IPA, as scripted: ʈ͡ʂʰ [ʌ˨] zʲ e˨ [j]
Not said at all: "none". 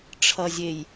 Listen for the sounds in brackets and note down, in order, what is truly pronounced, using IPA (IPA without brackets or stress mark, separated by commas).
ʌ˨, j